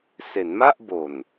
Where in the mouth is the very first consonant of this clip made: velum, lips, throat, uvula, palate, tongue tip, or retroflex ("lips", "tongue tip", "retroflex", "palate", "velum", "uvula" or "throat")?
tongue tip